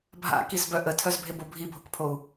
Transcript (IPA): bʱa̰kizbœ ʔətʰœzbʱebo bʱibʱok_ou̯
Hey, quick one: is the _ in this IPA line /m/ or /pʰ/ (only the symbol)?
pʰ